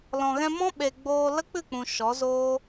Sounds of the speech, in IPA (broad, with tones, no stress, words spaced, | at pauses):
lɔ̃˨ɣɛ̃˧ mɔ̃˦ɓe˨ ɡ͡boː˧lə˦ k͡pɨ˦˨k͡pũ˨ ʃɔ˨˦zoː˦